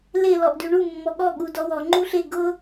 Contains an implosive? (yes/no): yes